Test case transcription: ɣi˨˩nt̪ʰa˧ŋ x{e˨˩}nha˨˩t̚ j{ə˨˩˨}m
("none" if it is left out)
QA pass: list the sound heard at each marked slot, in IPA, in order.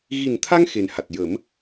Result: e˨˩, ə˨˩˦

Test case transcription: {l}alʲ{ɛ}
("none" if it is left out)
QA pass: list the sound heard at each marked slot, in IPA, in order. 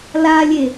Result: l, e

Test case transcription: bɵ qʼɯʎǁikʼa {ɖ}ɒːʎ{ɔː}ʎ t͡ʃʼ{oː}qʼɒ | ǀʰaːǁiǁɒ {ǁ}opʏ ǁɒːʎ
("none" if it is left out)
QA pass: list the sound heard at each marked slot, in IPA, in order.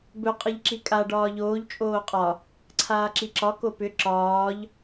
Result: ɖ, oː, oː, k

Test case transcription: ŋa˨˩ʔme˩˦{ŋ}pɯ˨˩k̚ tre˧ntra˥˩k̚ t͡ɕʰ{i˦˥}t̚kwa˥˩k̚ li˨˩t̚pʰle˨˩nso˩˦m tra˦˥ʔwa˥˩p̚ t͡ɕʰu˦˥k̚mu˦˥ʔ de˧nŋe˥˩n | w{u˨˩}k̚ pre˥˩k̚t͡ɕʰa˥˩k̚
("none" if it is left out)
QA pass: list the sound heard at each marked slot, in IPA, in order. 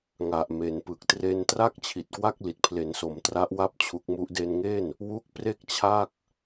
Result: n, i˨˩, u˦˥

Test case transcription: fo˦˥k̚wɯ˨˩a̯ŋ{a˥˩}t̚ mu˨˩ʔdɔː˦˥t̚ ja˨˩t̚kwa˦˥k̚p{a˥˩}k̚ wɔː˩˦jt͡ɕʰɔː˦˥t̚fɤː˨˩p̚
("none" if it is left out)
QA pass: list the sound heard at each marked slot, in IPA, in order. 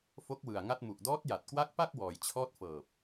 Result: a˥˩, a˥˩

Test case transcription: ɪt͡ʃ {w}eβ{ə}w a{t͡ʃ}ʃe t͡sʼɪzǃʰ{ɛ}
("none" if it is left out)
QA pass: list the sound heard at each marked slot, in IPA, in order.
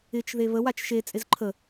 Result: ð, ə, t͡ʃ, ə

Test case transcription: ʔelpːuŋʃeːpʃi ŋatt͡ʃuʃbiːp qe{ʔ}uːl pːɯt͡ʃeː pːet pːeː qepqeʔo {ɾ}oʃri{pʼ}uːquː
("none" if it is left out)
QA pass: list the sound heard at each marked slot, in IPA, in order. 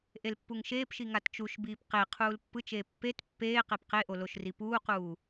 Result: qʰ, l, p

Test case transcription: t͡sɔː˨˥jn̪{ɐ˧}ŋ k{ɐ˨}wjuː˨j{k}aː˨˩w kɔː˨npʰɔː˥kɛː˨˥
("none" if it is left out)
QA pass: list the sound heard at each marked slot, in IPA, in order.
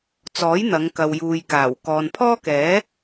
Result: ɐ˨˧, ɐ˨, k

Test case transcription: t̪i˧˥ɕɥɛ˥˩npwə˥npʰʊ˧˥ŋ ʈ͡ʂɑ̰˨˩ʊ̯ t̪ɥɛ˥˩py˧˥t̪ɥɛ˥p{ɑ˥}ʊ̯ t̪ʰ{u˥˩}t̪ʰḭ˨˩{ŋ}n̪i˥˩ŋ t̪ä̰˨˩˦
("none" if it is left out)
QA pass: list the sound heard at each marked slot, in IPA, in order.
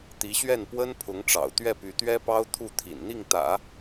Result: ɑ˥, u˥˩, n

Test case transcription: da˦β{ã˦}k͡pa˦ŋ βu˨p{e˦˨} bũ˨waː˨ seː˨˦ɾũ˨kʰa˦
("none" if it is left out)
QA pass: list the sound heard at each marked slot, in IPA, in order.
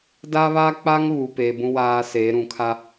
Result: a˦, e˨

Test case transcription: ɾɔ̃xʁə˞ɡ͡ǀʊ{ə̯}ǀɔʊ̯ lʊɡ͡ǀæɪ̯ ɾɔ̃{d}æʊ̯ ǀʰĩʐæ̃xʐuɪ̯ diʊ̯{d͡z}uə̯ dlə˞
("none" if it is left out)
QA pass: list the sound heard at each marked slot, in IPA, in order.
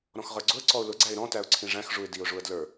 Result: ə̯, t, ʐ

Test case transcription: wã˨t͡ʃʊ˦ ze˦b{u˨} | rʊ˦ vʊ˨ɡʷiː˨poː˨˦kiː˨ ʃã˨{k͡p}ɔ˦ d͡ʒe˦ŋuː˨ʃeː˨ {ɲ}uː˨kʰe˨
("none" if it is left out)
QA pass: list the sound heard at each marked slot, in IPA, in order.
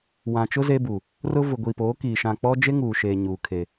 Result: u˨, k͡p, ɲ

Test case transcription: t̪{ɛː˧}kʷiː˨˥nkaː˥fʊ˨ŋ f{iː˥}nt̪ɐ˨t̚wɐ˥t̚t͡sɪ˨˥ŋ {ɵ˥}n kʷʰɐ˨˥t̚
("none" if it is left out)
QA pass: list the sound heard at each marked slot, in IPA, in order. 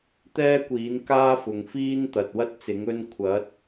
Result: ɛː˥, iː˥, ɵ˥

